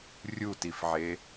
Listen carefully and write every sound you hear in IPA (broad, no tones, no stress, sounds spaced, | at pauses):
rʲ u t i f ʕ e